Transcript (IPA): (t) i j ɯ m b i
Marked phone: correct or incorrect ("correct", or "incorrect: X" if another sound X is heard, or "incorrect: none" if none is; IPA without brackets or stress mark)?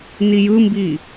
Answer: incorrect: n